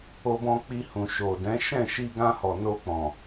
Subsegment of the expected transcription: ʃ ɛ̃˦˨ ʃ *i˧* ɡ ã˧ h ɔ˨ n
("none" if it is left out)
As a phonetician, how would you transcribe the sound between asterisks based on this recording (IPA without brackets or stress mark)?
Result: i˧